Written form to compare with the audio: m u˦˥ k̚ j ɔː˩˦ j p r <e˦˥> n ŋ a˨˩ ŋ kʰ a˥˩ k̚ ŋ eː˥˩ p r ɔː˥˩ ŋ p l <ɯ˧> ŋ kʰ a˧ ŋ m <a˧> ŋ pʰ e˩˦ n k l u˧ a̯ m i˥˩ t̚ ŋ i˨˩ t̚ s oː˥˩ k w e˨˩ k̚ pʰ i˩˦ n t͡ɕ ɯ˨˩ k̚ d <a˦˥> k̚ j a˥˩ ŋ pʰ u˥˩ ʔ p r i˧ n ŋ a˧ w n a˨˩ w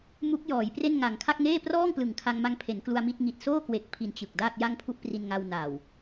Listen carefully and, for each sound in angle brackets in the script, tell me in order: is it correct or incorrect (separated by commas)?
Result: incorrect, incorrect, correct, incorrect